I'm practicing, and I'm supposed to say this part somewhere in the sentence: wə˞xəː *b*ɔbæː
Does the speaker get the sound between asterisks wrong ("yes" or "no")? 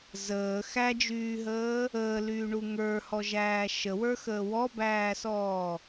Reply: yes